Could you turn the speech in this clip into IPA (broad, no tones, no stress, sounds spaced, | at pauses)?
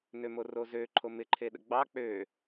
n ø m o r o z ø ǃʰ o m ɪ ǃʰ e ɗ ə̰ ɡ͡b ɑ k͡p ø